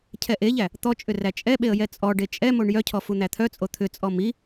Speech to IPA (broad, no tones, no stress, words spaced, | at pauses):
cʰɛʔeʎæ | t̪ɔt͡ʃʼʏ ræt͡ʃʼɛɓeə̯ jɛt͡sʼɔɖe t͡ʃʼɛmoɳ jœcʰɔ fun̪æt̪ʰœt͡sʼo t̪ʰʏt͡sʼɔ mi